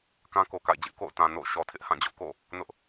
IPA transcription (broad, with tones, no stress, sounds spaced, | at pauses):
k ã˦ k o˨ k a̰˦˨ ɪ̯ d͡ʑ ɪ˦ ʔ k o̰˦˨ ʊ̯ t ã˨ n o̰˦˨ ʊ̯ ʃ ɔ˨ tʰ ɪ˦ ʔ h ã˦˨ d͡ʑ ʊ˦ ʔ k o̰˦˨ | n ʊ˦ ʔ